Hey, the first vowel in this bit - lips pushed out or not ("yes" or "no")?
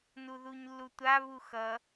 yes